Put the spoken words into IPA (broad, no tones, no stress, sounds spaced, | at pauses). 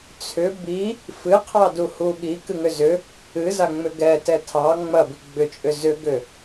t͡sʰ ʏ b i | f ɨ qʰ ɑ d u h u ɠ i k ɨ ŋ ʏ z ʏ | ɨ z a ŋ͡m ʏ ɡ ɛ t ɛ tʰ ɑ ŋ͡m ɐ b i ɡ͡b ʏ t͡ʃʼ ʏ z ʏ ɡ ʏ